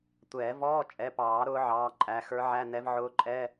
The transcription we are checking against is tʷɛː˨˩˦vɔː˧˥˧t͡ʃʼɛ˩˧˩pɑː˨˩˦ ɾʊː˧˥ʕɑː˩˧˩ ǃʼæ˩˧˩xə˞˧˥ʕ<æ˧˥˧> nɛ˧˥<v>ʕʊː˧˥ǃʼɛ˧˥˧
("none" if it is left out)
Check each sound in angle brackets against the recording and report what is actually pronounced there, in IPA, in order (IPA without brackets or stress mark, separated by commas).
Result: æ˧˥˧, v